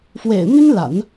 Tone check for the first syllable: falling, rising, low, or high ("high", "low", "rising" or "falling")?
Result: low